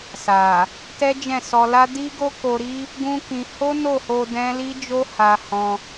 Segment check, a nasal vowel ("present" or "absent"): present